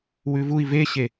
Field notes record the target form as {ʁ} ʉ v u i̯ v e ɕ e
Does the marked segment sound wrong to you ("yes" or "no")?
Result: yes